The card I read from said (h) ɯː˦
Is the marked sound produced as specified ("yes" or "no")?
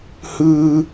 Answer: yes